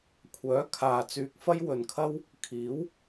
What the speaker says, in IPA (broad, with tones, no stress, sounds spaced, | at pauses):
kʷʰ œː˨˥ kʰ aː˨ t͡s yː˧ k̚ f ɐ˥ j w ɵ˨ n kʰ ɐ˥ w | kʰ iː˨˥ w